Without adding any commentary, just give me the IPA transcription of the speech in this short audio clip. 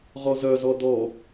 ʁɔzœzɔ dɔ

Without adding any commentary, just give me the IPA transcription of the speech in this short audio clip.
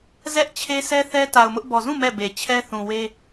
zɛ˦ʔt͡ɕʰe˦ sɛ˦θɛ˦ta˨ʊ̯mʊ˦ʔ bɔ˨zũ˦˨ mɛ˦˨be˨ t͡ɕʰɛ˦θũ˨ we˦

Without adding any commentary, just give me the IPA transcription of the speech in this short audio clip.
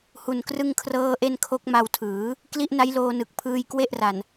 hu˨˩nkrɯ˥˩ŋkʰrɤː˥˩ʔe˥˩n kʰo˦˥k̚ma˧wtʰɯː˩˦ | kli˦˥ʔna˦˥jloː˧nɯ˨˩k̚ pʰɯː˧jkwe˥˩ʔra˨˩n

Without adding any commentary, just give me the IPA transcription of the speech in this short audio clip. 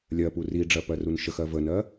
lʲɜpu riɖ͡ʐɜ pɜrunʃəxɜ vənɜ

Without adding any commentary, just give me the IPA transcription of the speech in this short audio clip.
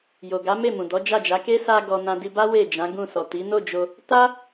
jo˨ɡa˨˦ me˦˨mũ˨dɔ˨˦ d͡ʒa˦˨d͡ʒa˨˦ ke˦sa˧ɡɔ˨ nã˧di˧ba˦ we˦˨d͡ʒã˨˦ɡũ˦˨ sɔ˨ ti˨˦ no˦˨d͡ʒo˧ | ta˦

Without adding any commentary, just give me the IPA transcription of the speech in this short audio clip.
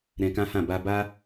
ɾɛ̃˧kã˦hã˦˨ ba˧ba˦

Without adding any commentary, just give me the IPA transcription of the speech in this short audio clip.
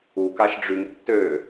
u kaʃɖ͡ʐyŋ tːø

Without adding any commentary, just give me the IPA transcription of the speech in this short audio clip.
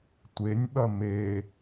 tʷenʲɓɐ me

